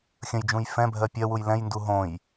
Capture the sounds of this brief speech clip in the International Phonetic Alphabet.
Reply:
xʲə̃jd͡ʒũj fɛ̃bʱɜ pʲɜwuj lɛ̃jndu ɦõj

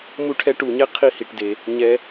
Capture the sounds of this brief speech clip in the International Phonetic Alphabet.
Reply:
mu˦ʈʰɛ˦ʈu˨ɲɛ˥ qʰi˦hi˩ʈde˩ | ɲɛ˨

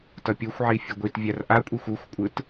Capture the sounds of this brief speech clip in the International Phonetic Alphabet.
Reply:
tʌpʲoxʷʕi fʲɯɡʷit vʲarʔakʷʼixʷ uxʷkʷʼɯt

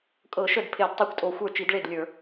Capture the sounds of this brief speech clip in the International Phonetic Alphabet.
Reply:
kʼɤ˧˩˧ʃə˥˩d pʰe˧˩˧d tˤə˞˥˩kʷtʼo˧˩˧xʷə˞˥˩ t͡ʃi˧˩˧dɭe˥˩dlʲə˞˧˩˧

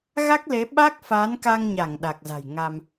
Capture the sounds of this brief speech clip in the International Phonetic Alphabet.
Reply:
ɣa˦˥k̚le˨˦ ɓa˦˥k̚fa˨˦nka˧ŋɲa˧˩ŋ ɗa˨˩k̚za̤˨˩j ŋa˧m

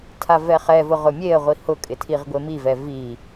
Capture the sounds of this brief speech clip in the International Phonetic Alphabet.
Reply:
tʰavɛχɛvʊ ʁʊmʲeə̯ʁʷi hʊkʼɪ tʰiʁɡʷemivɛ vi

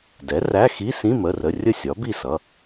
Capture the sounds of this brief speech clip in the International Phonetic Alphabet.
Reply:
dɛ˩˥ræ˧˥˧xi˧˥˧ sĩ˧˥˧mə˩˧˩rə˩˧˩ rʲə˥˩sʲɒ˩˥bi˥˩sʌ˩˧˩

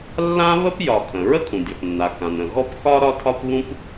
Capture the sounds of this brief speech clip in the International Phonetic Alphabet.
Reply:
lːã˥ βə˥pjɒ˩ kʰə̃˩ ɹə˥kʰũ˩dʲɒ˩pnːa˩ kã˩nə̃˩ ɣɔ˥pxɒ˥ ɾɒ˥tʰɒ˥pβũ˥p

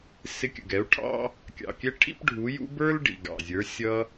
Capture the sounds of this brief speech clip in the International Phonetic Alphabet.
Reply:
sɪ˧kʲə̰˨ɡɛ˨˦u̯ʈʰɑ̰˦ | kʲɑ̰˨kʲɛ˦ ʈʰḭ˦pɖʱu˨˦jṵ˦ bə˞˦l ɖḭ˨ɡɑ̰˨zʲə˞˨˦ sʲʌ˦

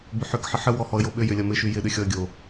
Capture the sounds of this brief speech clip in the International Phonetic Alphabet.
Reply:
bʏħʏk ħɪħə wɔhɔə̯joɓʏ jʏlʲɐmɪ ʃyjɪ ɗʏxʲɔə̯ɡʲo

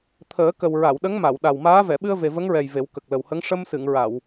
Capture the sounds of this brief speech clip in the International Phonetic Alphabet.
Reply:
t̪ʰəː˨˩˦ kə˨˩wɹa˨˩˨wɗə˧˥ŋma˨˩˨w ɗa˨˩wmaː˧˥ vɛ˨˩˨ɓɨ˧ə̯ ve˨˩və˧˥ŋɹɛ˨˩j ve˨˩˦wkə˨˩k̚lə˨˩whə˧˥ŋ ʂə˧msɨ˨˩˨ŋɹa˨˩˨w

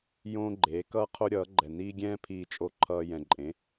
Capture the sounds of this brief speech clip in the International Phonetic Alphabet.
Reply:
jõː˥ɡ͡ǃeː˧˥kʌː˥qʰo˥ ɾʲʌː˧˥ɡ͡ǃɛ˧niː˥ɡʲɛ̃ː˥ pʰiː˧t͡ʃʼo˧ǃʰʌː˧ jɛ̃˧ǃʼẽ˧˥

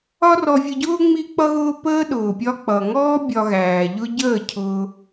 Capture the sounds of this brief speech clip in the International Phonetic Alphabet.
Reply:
ɒ˦rɔ˧vʲə˧ɟʊː˦ ŋ͡mi˦ k͡pʌ˦ɣʊː˦pəː˦ ɗʊː˨pʲɒ˧k͡pʌ˨ŋɔː˦ bʲɒ˧ɣæː˨ʎʊ˦ ɟəː˦˨cʰʊː˧

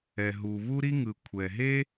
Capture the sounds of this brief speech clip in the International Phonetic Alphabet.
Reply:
ɛ˩ ɦu˩βu˥ɾi˥ŋɯ˩ kʷʰɛ˩ɦe˥

